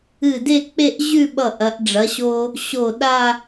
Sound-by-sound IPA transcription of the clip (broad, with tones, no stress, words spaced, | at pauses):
ɨ˧˩de˥˧k͡pe˥˧ʔ ʑʉ˥˧ ɓʌ˧˩ ʔɐ˩˧ʔɖ͡ʐɐ˩˧ɕo˧ | ɕo˧˩ɗa˥˧